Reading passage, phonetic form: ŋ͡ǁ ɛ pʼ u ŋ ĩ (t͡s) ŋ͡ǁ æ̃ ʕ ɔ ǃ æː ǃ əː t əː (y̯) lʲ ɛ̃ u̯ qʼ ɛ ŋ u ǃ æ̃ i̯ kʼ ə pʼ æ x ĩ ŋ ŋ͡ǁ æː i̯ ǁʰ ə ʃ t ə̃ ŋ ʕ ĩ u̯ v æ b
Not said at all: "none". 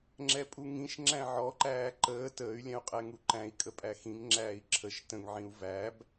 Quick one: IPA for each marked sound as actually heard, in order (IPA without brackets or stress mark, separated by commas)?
ʃ, y̯